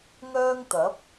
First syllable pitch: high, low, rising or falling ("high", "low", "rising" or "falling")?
high